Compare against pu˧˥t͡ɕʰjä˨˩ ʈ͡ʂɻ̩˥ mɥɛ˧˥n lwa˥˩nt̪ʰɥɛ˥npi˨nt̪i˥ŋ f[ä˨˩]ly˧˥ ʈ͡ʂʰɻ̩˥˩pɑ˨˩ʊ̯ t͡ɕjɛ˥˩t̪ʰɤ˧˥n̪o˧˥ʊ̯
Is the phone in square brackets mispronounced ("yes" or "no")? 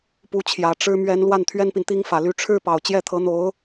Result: no